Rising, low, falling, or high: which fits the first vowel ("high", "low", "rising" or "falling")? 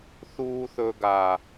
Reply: high